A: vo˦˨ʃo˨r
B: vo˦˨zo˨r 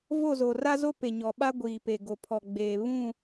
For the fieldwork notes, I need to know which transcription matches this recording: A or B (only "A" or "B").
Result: B